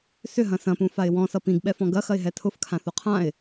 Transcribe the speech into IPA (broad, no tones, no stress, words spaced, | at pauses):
sʏɦɐ̃ sɐ̃pũfaɪ̯ wɔ̃sʌ pĩɡɓɛfɔ̃ ɡɐxɐɪ̯ɦɛ tʰʊfkʰãθo qʰãɪ̯